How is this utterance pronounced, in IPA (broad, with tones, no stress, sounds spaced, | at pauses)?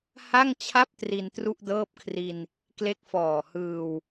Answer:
h a˥˩ ŋ t͡ɕʰ a˥˩ p̚ t r i˧ n t r u˥˩ ʔ d ɤː˥˩ p̚ kʰ r i˧ n | k l e˦˥ k̚ f ɔː˨˩ h ɯː˧ w